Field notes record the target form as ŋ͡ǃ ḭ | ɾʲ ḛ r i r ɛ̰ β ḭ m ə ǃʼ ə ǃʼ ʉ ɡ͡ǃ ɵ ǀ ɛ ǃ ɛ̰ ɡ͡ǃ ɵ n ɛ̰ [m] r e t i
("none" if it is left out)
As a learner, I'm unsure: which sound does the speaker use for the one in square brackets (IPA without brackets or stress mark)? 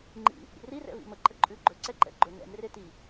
m